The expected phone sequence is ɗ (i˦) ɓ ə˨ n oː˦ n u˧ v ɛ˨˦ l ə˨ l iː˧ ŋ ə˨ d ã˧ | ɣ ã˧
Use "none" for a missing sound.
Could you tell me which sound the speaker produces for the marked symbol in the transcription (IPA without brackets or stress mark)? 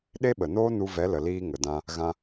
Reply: e˦